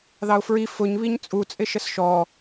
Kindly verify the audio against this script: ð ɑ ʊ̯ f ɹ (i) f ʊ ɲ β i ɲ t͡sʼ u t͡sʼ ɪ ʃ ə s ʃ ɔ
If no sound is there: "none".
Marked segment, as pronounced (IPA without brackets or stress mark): i